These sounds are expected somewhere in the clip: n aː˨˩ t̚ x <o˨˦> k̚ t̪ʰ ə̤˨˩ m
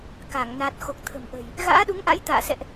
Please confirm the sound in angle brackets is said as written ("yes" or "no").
no